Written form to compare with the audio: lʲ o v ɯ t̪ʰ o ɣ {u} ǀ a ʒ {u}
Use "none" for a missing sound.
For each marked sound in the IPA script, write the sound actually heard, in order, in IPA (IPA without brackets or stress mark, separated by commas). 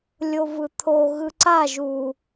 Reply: ɯ, u